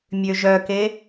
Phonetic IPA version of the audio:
mʲ ø ʒ œ k e

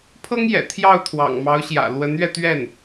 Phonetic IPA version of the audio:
pʰ ɤ˥ ŋ j ɛ̰˨˩ t̪ʰ j ɑ˥˩ ʊ̯ t̪ʰ w ɑ̰˨˩ ŋ m ɑ˧˥ ʊ̯ ɕ j ä̰˨˩ l w ə˧˥ n ɥ ɛ˧ t̪ ɥ ɛ˥˩ n

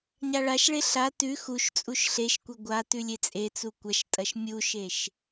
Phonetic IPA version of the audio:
ɲ a ɭ a ʃ ɭ e ɬ a t ʉ x u ʃ t͡sʼ u ʃ ɬ e ʃ kʷ e ɡʷ a t ʉ lʲ e t͡sʼ e t͡s u kʷ ɐ ʃ tʼ ɐ ʃ mʲ u ʃ e ʃ

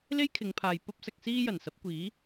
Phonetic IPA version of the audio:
l e˥ j kʰ ɪ˨˧ ŋ pʰ aː˨ j p ɐ˥ p̚ s ɐ˧ k̚ s iː˥ j ɐ˨˩ n s ɐ˨˥ p̚ kʷ iː˨˥

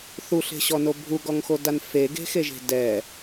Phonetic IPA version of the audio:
θ u ɬ e̤ ɕ ɔ n o bʱ u ɡ ɔ ŋ x o d a n f e ɡ e̤ x e ʒ e̤ d ɛ

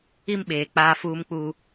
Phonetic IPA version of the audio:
i˦ m ɓ eː˨ k͡p aː˦ f uː˦ m k͡p uː˦

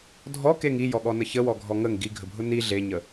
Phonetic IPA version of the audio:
dʱ ɔ k e ŋ i j ɔ ɠ ɔ n ə ç ə w ɔ ɡʱ ɔ ŋ ə ŋ ɡ i ɡʱ ə bʱ ʊ n i ɮ e ɲ ə

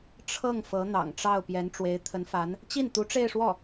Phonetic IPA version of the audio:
ʈ͡ʂʰ ɤ˥˩ ŋ f ɤ˧˥ n̪ ɑ̰˨˩ ŋ ʈ͡ʂ ɑ˥˩ ʊ̯ p j ɛ˧˥ n ʈ͡ʂ w e˧˥ ɪ̯ t̪ʰ ə˧˥ n f a˧˥ n | t͡ɕ i˥˩ n t̪ u˧˥ ʈ͡ʂ e˥˧ ɪ̯ ʂ w ɔ˥˩

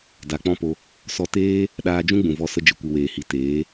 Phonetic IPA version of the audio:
d a˨ k͡p ɔ̃˦ p o˧ | s ɔ˧ t eː˦ | ɗ aː˧ d͡ʒ ũ˦ ɡ͡b ũ˨ v ɔ˦˨ s ə˦ d͡ʒ ɨ˨ kʷ ɨ˨ w eː˨ h i˨ t eː˨˦

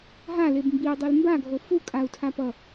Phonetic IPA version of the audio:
ɦ a l e b m b i u̯ dˤ e l m b a ɡʱ o f u kʼ a u̯ tʰ a p ʌ

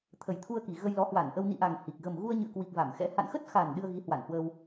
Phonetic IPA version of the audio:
t̪ʰ ə˨˩ j t̪ʰ u˧ ə̯ k i˨˩ ɣ ə˧ j l ɔ˨˦ h w a˧˩ n ʔ ə˧ w n ḭ˧˨ ʔ a˨˩ ŋ h i˨˩ k̚ ɣ ə˨˩ m ɣ u˧ ə̯ ɲ ɨ̰˧˨ ə̯ k w i˨˩ k̚ v a˧˩ m x ɛ̰˧˥ h a̰˧˨ n x ə˦˥ t̚ x a˨˩ n ɗ ɨ˧ ə̯ ɣ i˨˦ h w a˧˩ n h w ə˧ w

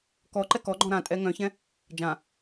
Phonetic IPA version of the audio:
k ɔ ǃ ɛ k ɔ ɡ͡ǃ ɔ̃ ɾ ã tʼ ɛ ŋ œ̃ ç ɛ̃ | d͡ʒ ã

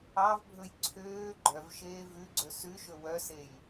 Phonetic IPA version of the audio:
ɑ v bʱ ɵ j ǀʰ øː ɡ͡ǃ œ v ʃ eː v ʉ ɡ͡ǀ ɵ s ʉ ʃ ɵ w œ s e j

